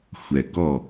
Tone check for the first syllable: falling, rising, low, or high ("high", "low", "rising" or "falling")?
low